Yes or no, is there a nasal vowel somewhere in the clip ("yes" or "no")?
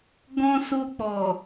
yes